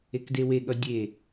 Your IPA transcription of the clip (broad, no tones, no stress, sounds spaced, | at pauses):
e k d e w e ɠ ʌ dʲ e